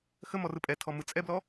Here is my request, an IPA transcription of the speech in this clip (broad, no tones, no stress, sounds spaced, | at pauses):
x ə m ɔ r ɯ pʼ ɛ tʰ ɔ m ɯ t͡sʼ ɛ b l ɔ